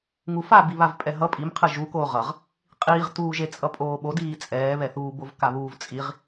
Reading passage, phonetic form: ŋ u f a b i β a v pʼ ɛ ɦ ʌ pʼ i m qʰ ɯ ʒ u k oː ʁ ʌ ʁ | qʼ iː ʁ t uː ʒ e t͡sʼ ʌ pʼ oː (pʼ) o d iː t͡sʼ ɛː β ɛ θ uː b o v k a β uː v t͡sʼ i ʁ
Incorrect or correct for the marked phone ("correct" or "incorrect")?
incorrect